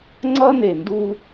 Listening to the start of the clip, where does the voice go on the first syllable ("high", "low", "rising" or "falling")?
high